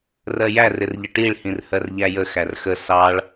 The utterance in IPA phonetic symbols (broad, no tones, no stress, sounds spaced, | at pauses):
r ɜ j æ r ɪ r ʎ ə ʈ i ɭ h ĩ r h ɜ r ʎ æ j ə x æ r x ə s ɑ ɭ